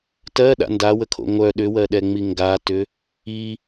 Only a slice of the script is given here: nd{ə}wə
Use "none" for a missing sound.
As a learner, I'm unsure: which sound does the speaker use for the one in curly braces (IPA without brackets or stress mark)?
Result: a